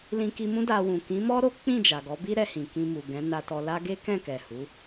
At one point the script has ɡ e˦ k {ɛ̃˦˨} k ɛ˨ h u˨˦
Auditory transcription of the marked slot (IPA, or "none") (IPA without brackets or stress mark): ɛ̃˦˨